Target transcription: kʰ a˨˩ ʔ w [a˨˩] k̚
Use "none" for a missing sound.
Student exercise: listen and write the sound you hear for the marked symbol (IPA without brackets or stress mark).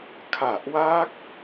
a˦˥